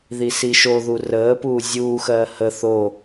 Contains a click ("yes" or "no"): no